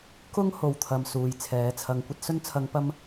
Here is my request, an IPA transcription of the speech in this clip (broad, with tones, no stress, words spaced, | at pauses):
kʊ˥ŋ ho˨wt̪ʰɐ˨m suː˨jt͡sʰɛː˨˥t͡sʰɐ˧ŋ kʷɐ˧t̚sɵ˧nt͡sʰɐ˨˧ŋ pɐ˧m